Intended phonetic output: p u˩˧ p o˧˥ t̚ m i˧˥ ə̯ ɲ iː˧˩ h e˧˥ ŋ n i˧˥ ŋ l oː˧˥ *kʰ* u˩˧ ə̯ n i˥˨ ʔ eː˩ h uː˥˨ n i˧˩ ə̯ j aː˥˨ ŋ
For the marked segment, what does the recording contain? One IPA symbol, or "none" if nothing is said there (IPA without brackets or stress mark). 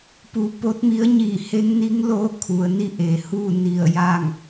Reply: kʰ